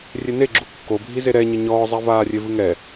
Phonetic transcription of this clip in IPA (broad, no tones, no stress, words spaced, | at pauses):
rʲeneɡ͡ǁu kːo bʱizeɾɛɲɘ ɲɔːzˤɛ vaːrʲevɨŋɛ